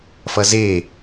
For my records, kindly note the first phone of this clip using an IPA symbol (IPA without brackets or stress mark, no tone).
f